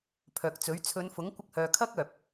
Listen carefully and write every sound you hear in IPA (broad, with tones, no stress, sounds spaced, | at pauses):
pʰ œː˨ k̚ t͡s ɵ˨˥ ɥ t͡sʰ ɵ˨˧ n f ʊ˨˥ ŋ kʷ ɪ˧ k̚ h œː˨ kʰ ɐ˥ k̚ œː˨ p̚